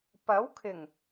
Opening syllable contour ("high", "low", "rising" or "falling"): rising